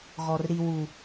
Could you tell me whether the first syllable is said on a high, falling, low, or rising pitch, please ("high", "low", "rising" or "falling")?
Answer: low